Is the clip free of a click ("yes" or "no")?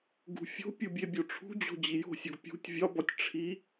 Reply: yes